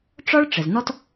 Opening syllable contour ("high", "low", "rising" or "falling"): high